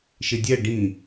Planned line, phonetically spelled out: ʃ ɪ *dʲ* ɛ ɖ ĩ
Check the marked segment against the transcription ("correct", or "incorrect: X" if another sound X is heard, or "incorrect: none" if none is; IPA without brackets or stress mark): correct